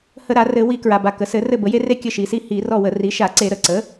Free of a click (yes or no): no